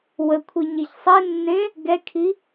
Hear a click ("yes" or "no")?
no